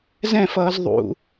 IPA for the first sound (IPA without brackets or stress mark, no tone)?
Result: z